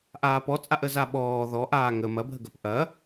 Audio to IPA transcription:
ʔ aː p ɔ t͡sʼ a ʔ ə z a ɓ ɔː ð ɔ ʔ aː ŋ ə m ɐ bʱ ə ɡ ɐ p ʔ ɐ

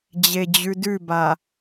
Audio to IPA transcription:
d͡ʑ e d͡ʑ ʉ d ʉ b a

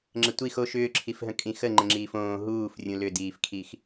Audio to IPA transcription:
ŋ͡ǁ ə tʷ i x o ʃ ʏː ǁʰ i f ɦ ə̃ kʼ ĩ x ə ŋ͡ǃ ə̃ ŋ͡ǁ iː f õː ɦ uː f rʲ ũ l ʏ d iː f kʰ i x

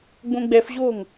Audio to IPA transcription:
ɡ͡b õ ɡ͡b ɛ f ʑ oː ŋ

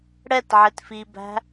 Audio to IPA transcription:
ɽ ɛ t ʕ ɪ t f i b æ̤

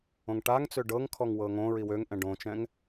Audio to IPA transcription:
õ ŋ ʈ a ŋ t͡s ø ɖ ɤ ŋ kʰ ɔ ŋ w ɤ ŋ õ ɹ i w ø ŋ ʔ ɛ̃ ɖ õ t͡ʃ ɛ̃ ŋ

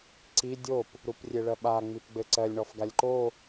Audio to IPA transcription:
ǀ i dʲ o p | ɾ u p rʲ e ɭ ɜ ɓ a ŋ͡m i p ɡ͡b ɘ ǀ ɜ lʲ ɳ ɔ f ɡ a lʲ ǃ o

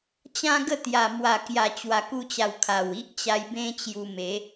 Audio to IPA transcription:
t͡ɕ ã˦ ɡ ə˥˧ t̪ j a˨˩ m w a˨˩ k j a˨˩ t͡ɕ w a˨˩ k u˧ t͡ɕ a˨˩ w kʰ a˨˩ w i˦ ʔ t͡ɕ a˧ j b ẽ˦ t͡ɕ j u˧ m e˨˦

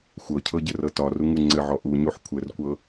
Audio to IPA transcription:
xʷ ɤ cʰ ɤ ɟ ɘ r ɤ t ɒ r u ŋ u ŋ͡ǀ ɘ ʕ ɔ ʔ u ɲ u ħ kʷʰ ɘ r kʷ ɤ

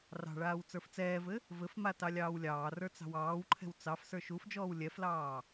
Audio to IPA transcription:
r ɑ̤ ɭ aː w t͡s ə˞ f t͡s ɛː v ɘ | v ɘ f m a t ɑ lʲ ɑː w lʲ ɑː r ə˞ t͡s ɑ̤ w ɑː w ǃʰ ɛ̤ w t͡s ɑ f s ə˞ ʃ u f d͡ʒ ɔː w lʲ ɛ f l ɑː

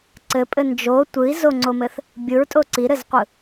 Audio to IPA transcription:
ǀ ɘ pʼ ɘ n d͡ʒ o tʷ ɯ i̯ z o ŋ͡ǀ o m ɘ θ | bʲ ɯ ɹ tʼ o ǀ i ɾ ɘ z qʷ ɯ

